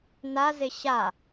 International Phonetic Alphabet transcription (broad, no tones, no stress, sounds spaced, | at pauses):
n a z ɪ ɕ a